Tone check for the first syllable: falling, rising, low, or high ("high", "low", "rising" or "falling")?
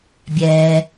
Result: low